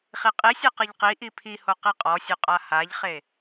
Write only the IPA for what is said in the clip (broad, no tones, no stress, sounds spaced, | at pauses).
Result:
χ i qʼ i sʲ e q ɯ ʎ q i ʔ i pʰ i h o q i qʼ ɔ sʲ o qʼ a h a ʎ χ e